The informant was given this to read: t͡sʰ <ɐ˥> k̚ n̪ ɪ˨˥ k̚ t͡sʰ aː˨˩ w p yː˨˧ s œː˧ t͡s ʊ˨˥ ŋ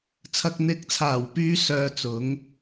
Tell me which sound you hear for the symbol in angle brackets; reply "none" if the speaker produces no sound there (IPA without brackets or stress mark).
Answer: ɐ˨